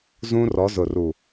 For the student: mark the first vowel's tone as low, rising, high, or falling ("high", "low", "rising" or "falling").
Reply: high